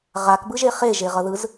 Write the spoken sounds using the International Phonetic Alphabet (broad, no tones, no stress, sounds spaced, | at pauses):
ʁ a k b ɯ ʒ e χ e ʒ e ʁ ʌ ð ɯ z